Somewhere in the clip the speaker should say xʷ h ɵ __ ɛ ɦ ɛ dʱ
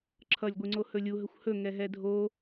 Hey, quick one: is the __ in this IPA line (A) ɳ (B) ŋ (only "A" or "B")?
B